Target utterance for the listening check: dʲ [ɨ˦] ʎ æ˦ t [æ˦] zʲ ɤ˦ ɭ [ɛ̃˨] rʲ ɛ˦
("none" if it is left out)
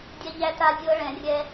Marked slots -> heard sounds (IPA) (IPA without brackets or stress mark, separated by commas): ɛ˦, a˦, ɛ̃˦